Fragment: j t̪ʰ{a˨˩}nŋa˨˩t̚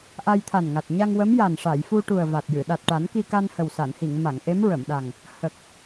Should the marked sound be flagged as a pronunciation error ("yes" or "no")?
no